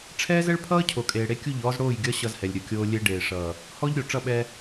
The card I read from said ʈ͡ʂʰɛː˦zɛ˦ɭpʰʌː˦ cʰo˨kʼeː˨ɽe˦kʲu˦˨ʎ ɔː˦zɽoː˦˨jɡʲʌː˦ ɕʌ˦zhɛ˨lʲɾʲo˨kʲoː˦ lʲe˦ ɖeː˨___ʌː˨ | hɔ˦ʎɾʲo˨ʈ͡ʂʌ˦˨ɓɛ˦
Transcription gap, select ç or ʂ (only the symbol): ʂ